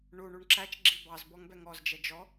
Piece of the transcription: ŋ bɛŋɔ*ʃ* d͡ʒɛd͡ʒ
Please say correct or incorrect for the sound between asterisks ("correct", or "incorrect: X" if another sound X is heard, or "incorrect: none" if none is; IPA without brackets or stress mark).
incorrect: z